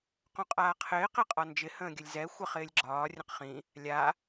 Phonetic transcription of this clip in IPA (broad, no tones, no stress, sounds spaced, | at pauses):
q õ qʼ aː qʰ ɪː q e qʼ ɒ n d͡ʒ ɪ h ə̃ː ɡʲ ə lʲ z ɛ xʷ ə χ ɪː lʲ ɡ͡ǁ ɒː rʲ ə̃ q χ ĩ | lʲ a